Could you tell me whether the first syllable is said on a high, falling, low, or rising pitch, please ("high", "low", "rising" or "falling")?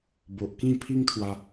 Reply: low